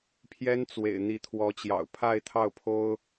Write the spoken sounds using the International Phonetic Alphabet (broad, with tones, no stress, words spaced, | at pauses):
pʰjɛ˥nt͡swḛ˨˩ɪ̯ n̪i˧˥t̪ʰwɔ˧˥t͡ɕjɑ̰˨˩ʊ̯ pʰa˥˧ɪ̯t̪ʰɑ˥˩ʊ̯pʰo˥ʊ̯